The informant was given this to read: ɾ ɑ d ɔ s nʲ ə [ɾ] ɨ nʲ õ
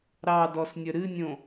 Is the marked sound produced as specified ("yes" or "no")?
yes